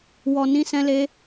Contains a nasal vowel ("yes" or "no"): yes